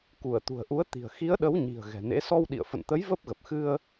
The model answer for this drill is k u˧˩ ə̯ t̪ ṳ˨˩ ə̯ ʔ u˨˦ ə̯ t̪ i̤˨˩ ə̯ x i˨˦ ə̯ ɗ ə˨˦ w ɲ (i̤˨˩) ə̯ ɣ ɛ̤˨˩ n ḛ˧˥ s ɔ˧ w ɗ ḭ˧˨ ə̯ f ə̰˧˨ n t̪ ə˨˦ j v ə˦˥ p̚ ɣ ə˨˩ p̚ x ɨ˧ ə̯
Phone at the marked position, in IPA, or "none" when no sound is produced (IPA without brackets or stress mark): i̤˨˩